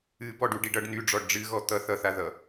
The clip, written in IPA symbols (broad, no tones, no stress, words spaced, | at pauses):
ɨbɔɖuɖiɖ ʌɖ nyɖ͡ʐɔɖ ɖ͡ʐɨɣɔ t̪ʌ θʌθaðʌ